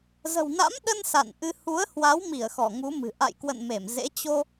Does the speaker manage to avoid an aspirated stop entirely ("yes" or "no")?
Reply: yes